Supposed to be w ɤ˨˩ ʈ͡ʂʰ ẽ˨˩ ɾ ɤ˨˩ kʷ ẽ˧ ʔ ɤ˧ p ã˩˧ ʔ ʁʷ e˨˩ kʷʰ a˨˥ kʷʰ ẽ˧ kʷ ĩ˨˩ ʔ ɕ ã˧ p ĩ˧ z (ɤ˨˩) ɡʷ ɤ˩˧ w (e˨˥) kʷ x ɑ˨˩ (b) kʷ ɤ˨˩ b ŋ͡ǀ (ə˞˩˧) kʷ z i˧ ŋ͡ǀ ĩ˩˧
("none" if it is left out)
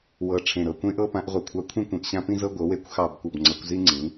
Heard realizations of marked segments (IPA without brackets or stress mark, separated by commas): ɤ˧, e˨˥, b, ɤ˩˧